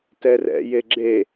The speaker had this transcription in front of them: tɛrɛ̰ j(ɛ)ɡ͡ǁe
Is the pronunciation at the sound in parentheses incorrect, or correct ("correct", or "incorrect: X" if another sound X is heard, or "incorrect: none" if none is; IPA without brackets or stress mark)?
incorrect: e